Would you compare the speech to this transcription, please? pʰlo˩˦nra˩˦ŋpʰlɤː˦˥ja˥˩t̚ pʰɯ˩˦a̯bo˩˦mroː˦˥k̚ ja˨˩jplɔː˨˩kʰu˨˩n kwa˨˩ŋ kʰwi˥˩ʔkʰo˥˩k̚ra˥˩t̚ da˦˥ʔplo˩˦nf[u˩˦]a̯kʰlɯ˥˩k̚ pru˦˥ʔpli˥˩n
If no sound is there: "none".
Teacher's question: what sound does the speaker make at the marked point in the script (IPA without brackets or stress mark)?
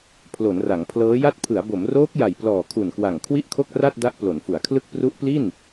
u˩˦